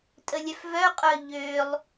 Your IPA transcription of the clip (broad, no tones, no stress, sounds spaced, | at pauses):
tʼ ə lʲ œ f v œ qʼ œ ʎ ø lˠ